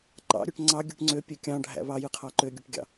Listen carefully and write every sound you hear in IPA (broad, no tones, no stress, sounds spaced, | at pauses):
ǃ ɑ̰ ɾʲ ø ʈ ŋ͡ǀ ɑ ɡʲ ɯ ʈ ŋ͡ǀ ø pʲ ø kʲ ɑ̃ ɖʱ æ̰ β ɑ j ɯ qʰ ɑ ǃ ø ɡʲ ɯ ʈ ɡʲ ɑ̰